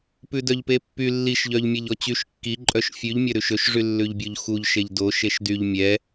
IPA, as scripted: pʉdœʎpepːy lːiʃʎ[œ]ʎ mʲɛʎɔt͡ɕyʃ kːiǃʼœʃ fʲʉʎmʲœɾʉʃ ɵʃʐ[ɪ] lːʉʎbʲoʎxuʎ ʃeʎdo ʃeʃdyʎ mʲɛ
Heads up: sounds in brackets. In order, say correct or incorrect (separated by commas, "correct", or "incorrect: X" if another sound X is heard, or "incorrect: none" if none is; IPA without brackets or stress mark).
correct, incorrect: y